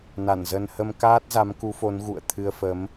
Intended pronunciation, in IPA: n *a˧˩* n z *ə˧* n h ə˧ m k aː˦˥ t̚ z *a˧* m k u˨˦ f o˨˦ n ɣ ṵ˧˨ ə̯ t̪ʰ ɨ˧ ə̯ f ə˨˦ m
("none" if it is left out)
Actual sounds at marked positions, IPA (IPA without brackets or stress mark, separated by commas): a˧˩, ə˧, a˨˦